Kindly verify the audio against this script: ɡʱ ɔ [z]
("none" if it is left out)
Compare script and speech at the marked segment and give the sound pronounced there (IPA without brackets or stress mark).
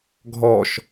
ʃ